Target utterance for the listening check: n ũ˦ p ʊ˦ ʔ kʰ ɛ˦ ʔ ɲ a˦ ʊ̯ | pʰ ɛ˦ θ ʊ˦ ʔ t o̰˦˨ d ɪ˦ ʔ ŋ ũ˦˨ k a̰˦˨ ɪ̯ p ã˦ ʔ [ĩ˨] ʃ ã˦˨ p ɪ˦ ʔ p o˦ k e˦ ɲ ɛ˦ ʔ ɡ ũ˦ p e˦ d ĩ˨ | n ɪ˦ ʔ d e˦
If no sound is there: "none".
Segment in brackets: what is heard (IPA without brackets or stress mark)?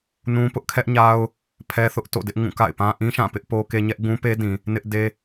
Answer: ĩ˦